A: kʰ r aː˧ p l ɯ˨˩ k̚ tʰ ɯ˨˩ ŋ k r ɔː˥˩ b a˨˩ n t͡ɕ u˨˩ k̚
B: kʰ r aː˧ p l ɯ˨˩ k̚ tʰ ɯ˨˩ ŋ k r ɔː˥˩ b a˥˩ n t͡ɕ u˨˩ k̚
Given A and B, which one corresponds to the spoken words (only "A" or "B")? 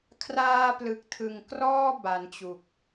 A